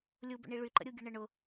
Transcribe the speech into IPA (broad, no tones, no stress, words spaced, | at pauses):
lʲubə̰ɳi ɭyǃə̰ɾʲuɡʲə ɳəɳʊ